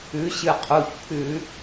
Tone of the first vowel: rising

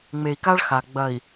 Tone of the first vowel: low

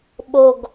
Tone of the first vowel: low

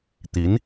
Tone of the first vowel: rising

